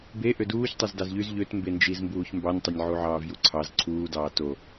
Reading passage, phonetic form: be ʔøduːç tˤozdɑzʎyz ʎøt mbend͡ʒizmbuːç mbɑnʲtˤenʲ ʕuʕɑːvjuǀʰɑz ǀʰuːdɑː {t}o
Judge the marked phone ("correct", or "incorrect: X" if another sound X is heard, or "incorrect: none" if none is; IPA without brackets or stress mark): correct